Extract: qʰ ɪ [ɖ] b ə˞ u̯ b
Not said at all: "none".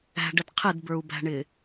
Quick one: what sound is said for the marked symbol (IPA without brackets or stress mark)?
d